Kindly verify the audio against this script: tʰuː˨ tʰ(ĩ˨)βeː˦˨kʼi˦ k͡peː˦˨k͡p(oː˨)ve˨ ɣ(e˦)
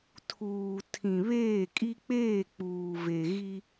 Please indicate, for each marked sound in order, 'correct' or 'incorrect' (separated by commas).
correct, incorrect, incorrect